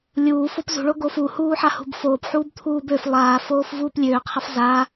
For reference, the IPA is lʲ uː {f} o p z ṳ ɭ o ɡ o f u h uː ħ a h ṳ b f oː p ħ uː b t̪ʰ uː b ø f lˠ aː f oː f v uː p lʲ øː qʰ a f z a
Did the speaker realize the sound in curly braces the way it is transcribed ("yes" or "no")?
yes